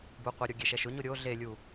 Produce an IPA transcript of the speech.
b u qʷ ɪ ɾʲ o ɡʲ e ʃ ɛ ʃ ʊ ɲ o ɾʲ o ɮ e lʲ u

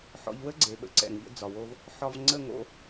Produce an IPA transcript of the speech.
ħ ɔ̰˧ ʎ w ə˦ ɡ͡ǀ e˨ ɓ ə̰˧ ǀ ɛ̰˨ ŋ ʎ ə̰˧ d͡z ɒ˨ w o˧ v | ħ ɒ˧ v ŋ͡ǀ ə˦˨ ŋ o̰˧

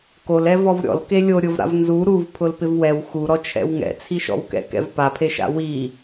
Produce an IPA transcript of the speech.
k o l ɛ v ɔ v ɾʲ ɔ̰ l k e lʲ o ɾʲ ʊ v ɾ a̰ v n z u ɾ u v pʰ ʊ l p ɪ v w ɛ w x u ɾ ɔ t͡ʃʰ ɛ̰ w ŋ ɛ̰ t͡sʰ i ʃ ɔ̰ w k ɛ̰ k ɛ̰ v p a pʰ e ʃ a̰ w i

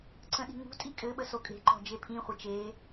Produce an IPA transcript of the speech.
ǀ ə̃ ɗ i̤ ŋ ṳ tʼ i kʼ ɘ ɓ ə s o kʼ e̤ ǃ ɔ̤ d͡ʒ e pʰ ĩ χʷ ɘ t͡ʃ e

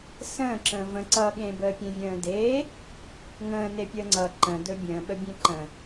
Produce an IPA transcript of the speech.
s ə̃ː ǁ ə̃ː v ə̃ ǀ ʌ ɠ ẽ b əː pʲ ẽ vʲ ə̃ː d eː | ŋ ə̃ː n e pʲ əː ŋ͡ǀ ʌ ǃ ə̃ d ɵ bʲ ə̃ː ɓ ə bʲ ẽ ǃ ə̃

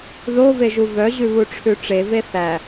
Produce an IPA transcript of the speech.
ð o v e ʒ u v œ ʑ ʉ β u ʈ͡ʂʰ ʉ ʈ͡ʂ e v e θ æ

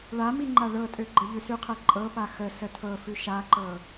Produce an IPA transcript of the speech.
ɭ a m i ŋ͡ǃ a ɭ ɤ tʼ ø ɡ͡ǃ ə ʎ ʉ s ʉ qʰ ɜ ǃʼ ɤ p a x ə s ə tʰ ɤ f ʉ ʃ a ǃ ɤ

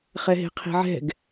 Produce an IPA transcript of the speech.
χ ɛ ɦ e̤ qʰ i̤ ʕ ɛ̤ ɡ

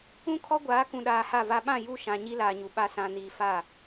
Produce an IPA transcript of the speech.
ũ˦ kʰ ɔ˦ ɡʷ aː˨˦ k ũ˨ ɗ aː˨ h a˦˨ v a˦ ɓ ã˦˨ j u˦˨ ʃ ã˨ ɲ i˦ l aː˨ ɲ u˨ ɓ a˦ s ã˨ n iː˨ f a˦˨

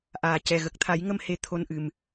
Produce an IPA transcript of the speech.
ʔ aː˨˩ c ɛ˨˩ ɣ ə˨˩ k̚ t̪ʰ a˨˩˦ j ŋ ə˧ m h e˧˥ t̪ʰ o˧ n ʔ ɨ˨˩ m

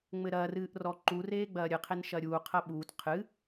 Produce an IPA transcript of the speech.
ŋ͡m ɘ ɾ ɐː r ɨː ʔ r ɔ ǃ u r eː ɡ͡b ɐː ɾʲ ɨ qʰ e n ʃ ɐ ɾʲ uː qʰ ɐ ɓ uː t qʰ ɨ

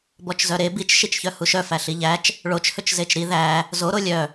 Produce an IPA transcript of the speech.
b ɔ t͡ʃ z œ ɾ e b i t͡ʃ ʃ i t͡ʃ ç œ h u ʃ œ f æ ɬ i ʎ æ t͡ʃ | ɭ o t͡ʃ h ɵ t͡ʃ z e t͡ʃ ɾ i ð æ | z o ɾ o lʲ œ

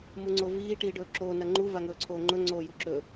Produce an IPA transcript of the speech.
m u ŋ͡ǀ o v iː ʈ iː ɖ ɵː ǁ oː n ɐ ŋ͡ǃ u v a ŋ ɵː ǀʰ oː ŋ͡ǃ ɵ ŋ͡ǀ oː j u ǁ ɵ

